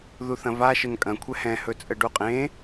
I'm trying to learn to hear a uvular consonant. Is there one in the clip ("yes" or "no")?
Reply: yes